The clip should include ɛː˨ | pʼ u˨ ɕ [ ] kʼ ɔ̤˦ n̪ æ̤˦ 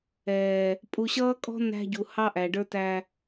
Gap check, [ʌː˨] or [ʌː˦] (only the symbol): ʌː˦